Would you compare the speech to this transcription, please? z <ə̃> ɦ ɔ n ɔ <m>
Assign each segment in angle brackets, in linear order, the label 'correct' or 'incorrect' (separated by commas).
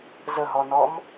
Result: incorrect, correct